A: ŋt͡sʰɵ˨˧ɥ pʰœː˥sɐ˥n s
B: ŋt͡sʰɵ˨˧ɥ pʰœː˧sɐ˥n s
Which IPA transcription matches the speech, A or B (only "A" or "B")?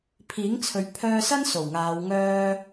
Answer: B